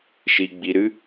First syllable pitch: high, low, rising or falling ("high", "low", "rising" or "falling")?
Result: low